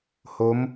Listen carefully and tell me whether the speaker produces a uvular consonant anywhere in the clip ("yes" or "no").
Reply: no